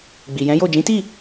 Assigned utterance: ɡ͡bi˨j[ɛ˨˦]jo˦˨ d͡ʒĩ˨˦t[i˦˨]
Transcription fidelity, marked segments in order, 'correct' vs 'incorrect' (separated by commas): incorrect, correct